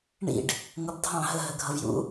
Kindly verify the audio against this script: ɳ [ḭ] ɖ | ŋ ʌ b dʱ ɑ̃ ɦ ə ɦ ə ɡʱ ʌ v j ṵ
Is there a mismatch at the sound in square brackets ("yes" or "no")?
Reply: no